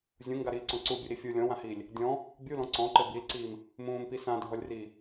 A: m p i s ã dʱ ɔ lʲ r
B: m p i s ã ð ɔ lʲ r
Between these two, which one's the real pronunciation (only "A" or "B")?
A